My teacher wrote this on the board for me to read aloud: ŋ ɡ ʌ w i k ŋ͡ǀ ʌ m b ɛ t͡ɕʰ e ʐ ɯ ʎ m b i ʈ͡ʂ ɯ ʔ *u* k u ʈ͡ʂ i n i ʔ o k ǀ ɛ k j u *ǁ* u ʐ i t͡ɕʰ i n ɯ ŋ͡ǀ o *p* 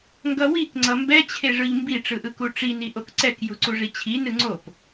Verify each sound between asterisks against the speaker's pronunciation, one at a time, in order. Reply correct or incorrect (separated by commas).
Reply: incorrect, incorrect, correct